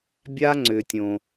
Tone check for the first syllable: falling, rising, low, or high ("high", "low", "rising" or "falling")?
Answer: high